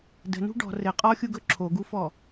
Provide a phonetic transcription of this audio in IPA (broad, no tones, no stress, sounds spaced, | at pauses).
d ə̤ n ṳ ɖ ɔ̤ r ɘ qʼ ɔ xʲ u ɡ ɵ ǁʰ o ɡ u f ɔ